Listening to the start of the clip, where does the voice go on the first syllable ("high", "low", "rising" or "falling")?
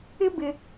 high